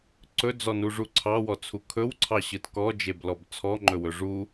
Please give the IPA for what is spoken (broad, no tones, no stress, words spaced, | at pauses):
ǀɵd͡zɔnuʐu ǀʰɑwɔt͡sʰu kʰɵwǀʰɑɕɯt kɔd͡ʒeblɔb t͡sʰɔŋ͡ǃɵwɵ ʐu